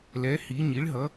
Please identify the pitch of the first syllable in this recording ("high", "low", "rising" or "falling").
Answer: rising